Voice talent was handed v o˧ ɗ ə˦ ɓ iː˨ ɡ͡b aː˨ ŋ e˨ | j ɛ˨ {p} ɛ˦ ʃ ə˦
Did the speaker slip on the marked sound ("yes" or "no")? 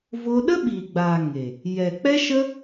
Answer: yes